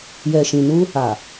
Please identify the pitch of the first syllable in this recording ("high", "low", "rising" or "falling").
low